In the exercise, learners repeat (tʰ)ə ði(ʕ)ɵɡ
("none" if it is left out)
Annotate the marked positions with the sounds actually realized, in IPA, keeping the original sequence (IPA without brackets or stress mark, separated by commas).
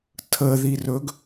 tʰ, r